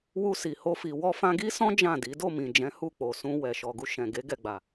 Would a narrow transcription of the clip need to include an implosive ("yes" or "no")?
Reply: no